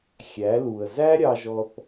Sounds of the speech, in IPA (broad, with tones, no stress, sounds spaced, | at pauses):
xʲ æ˩˥ l u˩ ə̯ z æ˥ ɾʲ ɑ˧ ʒ ɔ˧ θ